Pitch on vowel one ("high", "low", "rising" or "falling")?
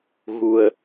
low